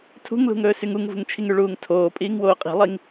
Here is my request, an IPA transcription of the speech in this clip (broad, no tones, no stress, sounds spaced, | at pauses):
tʰ ṳ ŋ l ṳ ŋ ɵː s y ŋ u ŋ v ṳ ŋ t͡ʃʰ i ŋ y ɭ uː ŋ tʰ oː pʼ iː ŋ w oː qʼ i̤ lˠ i ŋ